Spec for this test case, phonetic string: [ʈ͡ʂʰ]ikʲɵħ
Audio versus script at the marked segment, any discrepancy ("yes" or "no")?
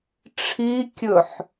no